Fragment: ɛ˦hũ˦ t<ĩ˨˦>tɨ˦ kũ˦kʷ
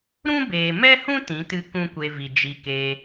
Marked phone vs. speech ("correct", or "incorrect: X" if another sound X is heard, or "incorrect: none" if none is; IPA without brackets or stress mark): correct